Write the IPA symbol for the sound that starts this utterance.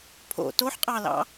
pʰ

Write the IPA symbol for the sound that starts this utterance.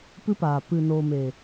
p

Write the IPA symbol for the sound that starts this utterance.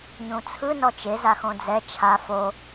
ɲ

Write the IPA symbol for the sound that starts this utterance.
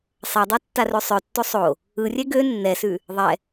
sˤ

